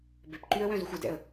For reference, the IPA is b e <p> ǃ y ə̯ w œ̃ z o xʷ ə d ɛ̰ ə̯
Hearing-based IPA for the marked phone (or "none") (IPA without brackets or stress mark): p